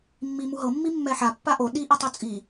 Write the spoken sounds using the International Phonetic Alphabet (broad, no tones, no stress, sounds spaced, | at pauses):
mː i m u ɦ ɤ mː i mː ɛ ħ a pː a ʔ o ɗ i ʔ i tˤ o t͡sʼ i